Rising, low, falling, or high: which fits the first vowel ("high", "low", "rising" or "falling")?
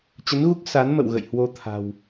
rising